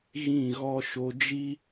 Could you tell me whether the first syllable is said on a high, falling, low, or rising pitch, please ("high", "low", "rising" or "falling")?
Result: falling